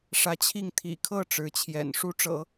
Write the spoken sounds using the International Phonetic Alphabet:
ʂ ä˧˥ t͡ɕʰ i˥˩ ŋ t̪ʰ ḭ˨˩ kʰ ɤ˥˩ ʈ͡ʂ ɻ̩˧˥ t͡ɕʰ j ɛ̰˨˩ n ʂ u˥ ʈ͡ʂ ɤ̰˨˩˦

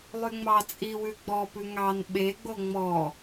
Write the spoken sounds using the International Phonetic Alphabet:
lˠ y ŋ͡m ɑ t͡sʼ i w ʉ ɡ͡b ɔ p ʉ ŋ ɑ n ɓ e ɡ͡b o ŋ͡m ɔ

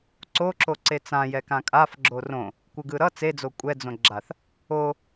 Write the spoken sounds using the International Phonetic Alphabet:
ǀ o ǁ o ǀ e t͡s ã j ɛ k ã kʼ a f ɡ͡ǁ o r õ | kʷ ɯ ɡ ɯ ɾ ʌ t͡s e d͡z o kʷʼ ɛ d͡z õ ɡ͡ǁ a θ | o

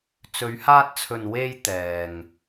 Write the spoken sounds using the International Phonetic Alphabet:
t͡s ɵ˨˧ ɥ h aː˧ t̚ t͡sʰ ɵ˨ n w e˧ j t̪ ɛː˨ ŋ

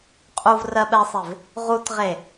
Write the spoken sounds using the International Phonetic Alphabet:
qʼ u v r ɜ ɓ ɛ sˤ e v | ʁ u t ʁ e

